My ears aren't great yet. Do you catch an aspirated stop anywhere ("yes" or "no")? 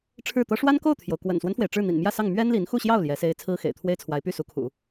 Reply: yes